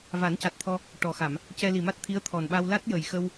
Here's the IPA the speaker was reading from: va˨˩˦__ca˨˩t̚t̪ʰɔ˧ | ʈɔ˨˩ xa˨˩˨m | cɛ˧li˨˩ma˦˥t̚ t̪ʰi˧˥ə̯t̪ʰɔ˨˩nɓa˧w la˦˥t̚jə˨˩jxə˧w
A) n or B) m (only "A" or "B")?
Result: A